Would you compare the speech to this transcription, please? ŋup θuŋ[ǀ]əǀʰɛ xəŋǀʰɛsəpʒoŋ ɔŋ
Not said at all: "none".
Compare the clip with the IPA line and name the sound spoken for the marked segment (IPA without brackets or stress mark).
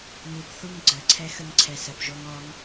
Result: ɡ͡ǀ